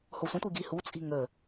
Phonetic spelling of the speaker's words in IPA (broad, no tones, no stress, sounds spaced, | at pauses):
h o sʷ ə̃ tʷ i ɡ i h u t͡sʼ i̤ ŋ ə